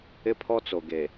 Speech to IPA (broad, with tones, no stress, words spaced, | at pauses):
ɪ˦pʰɔ˦t͡so˨ ɡe˨